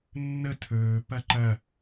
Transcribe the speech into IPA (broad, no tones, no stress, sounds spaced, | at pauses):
nː ə tʰ ɵː p ɐ ǃ ɐ